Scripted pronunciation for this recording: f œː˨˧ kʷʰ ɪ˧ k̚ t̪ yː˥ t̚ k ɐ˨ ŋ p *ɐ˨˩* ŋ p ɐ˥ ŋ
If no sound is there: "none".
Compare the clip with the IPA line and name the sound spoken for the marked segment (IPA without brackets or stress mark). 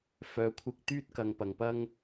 ɐ˨˩